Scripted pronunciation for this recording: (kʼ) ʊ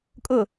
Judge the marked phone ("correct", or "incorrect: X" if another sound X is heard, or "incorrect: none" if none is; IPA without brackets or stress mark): correct